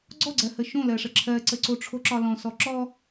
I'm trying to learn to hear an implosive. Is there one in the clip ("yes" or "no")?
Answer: no